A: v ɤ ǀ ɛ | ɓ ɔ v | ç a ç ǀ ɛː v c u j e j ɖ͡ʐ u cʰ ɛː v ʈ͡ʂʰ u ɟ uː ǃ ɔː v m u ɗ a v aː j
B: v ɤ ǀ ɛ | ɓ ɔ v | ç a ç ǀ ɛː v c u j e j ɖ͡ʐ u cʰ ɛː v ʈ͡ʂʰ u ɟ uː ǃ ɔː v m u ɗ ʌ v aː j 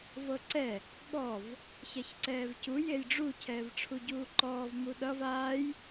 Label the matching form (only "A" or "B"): B